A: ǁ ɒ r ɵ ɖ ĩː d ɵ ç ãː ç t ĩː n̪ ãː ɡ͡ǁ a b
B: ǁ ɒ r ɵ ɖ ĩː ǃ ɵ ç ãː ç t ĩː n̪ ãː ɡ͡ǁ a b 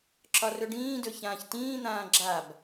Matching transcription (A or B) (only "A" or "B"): A